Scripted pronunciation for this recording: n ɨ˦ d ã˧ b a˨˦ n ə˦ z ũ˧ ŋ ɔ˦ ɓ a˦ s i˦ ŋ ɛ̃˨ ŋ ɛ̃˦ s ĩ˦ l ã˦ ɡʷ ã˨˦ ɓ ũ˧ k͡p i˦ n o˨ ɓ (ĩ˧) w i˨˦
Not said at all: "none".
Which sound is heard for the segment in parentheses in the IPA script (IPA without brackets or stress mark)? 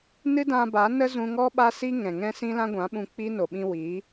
ĩ˧